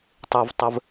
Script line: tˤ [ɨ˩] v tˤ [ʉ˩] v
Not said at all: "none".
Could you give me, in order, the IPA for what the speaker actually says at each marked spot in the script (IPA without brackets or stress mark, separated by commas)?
e˩, ə˩